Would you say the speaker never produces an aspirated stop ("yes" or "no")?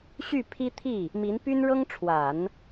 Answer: no